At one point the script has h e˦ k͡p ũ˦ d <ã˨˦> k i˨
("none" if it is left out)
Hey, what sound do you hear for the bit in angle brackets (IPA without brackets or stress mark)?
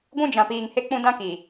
ã˦